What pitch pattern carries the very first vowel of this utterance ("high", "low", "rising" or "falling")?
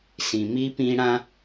low